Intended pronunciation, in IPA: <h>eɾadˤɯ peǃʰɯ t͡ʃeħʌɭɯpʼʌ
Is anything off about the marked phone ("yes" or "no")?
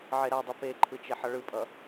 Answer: yes